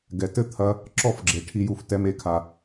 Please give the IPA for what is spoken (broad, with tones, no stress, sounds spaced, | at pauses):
ɡ ɛ˨ t ɘ˦ t̪ʰ ɐ˧ | ǁ ɔ˦ f ɡ͡ǁ e˨ ʈʰ i˧ j u˧ f t ɛ˧ m e˨˦ kʰ a˨